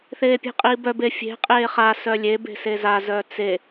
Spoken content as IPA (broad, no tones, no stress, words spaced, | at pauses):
θeːpʲe̤qʼiːbœb efʲe̤ qʼeːχa sœlʲeb e̤seza zœːt͡se